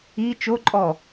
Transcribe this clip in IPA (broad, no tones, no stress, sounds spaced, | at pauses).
i t͡ʃ o ǃʼ ɔ